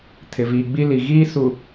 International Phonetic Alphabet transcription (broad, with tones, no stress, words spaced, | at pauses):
tʰɪ˨viː˨ɡ͡bi˦li˨ ɣiː˦ su˨